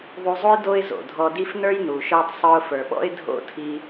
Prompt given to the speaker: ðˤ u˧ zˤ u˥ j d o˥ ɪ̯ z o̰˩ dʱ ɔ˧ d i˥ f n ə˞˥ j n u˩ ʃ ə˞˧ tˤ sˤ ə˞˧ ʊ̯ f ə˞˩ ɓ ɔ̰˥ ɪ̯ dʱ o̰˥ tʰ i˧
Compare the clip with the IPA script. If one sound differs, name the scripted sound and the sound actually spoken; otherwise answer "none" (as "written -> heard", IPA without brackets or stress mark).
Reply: none